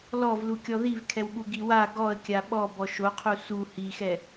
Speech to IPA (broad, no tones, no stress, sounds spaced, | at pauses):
l ɔ v l u kʲ ɔ ð i v kʰ ɛ w ɠ u ɡ i w a ɡ ɔ ə̯ kʲ a ɓ ɔ b ɔ ʃ o qʰ u s u h i x ɛ